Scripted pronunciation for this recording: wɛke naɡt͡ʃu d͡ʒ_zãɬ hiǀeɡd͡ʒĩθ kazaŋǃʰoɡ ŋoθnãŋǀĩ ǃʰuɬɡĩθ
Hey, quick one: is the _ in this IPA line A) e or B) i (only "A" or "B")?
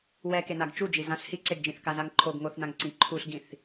B